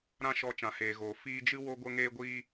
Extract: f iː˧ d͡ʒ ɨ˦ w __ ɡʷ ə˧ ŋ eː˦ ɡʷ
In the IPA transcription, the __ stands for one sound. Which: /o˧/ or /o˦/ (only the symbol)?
o˧